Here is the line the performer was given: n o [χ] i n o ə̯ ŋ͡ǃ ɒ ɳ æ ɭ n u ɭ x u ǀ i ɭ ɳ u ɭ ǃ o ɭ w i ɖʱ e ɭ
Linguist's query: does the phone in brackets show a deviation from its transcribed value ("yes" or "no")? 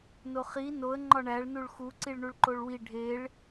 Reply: no